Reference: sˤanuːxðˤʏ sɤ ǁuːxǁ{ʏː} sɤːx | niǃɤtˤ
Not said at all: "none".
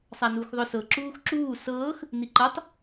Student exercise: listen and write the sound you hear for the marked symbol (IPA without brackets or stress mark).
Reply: uː